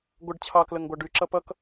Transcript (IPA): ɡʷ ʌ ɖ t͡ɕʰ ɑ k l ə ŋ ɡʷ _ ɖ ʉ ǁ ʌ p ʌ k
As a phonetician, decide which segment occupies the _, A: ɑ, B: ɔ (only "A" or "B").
A